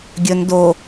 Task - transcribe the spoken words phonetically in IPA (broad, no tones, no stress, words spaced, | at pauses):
ɡʲɵn do